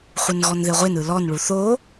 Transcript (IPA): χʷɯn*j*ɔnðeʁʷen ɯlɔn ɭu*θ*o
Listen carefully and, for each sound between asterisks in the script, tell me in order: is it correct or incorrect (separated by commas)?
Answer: incorrect, correct